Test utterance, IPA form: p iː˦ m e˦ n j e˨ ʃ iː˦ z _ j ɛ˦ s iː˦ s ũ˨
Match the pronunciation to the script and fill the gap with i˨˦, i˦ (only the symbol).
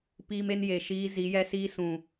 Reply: i˨˦